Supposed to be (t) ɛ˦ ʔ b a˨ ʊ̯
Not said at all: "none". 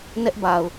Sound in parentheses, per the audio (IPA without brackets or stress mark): n